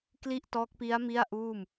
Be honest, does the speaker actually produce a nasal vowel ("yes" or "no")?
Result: no